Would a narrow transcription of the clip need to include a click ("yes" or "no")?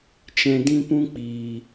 no